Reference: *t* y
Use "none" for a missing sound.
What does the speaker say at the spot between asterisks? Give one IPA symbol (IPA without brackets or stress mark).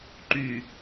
ǃ